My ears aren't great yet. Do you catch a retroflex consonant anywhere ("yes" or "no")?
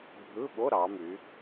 no